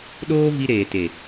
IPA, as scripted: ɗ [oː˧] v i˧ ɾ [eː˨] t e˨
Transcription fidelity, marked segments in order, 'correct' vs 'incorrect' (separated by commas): correct, correct